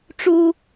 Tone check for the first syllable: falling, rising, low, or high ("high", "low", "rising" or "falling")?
high